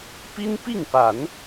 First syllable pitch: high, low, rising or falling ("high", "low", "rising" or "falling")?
high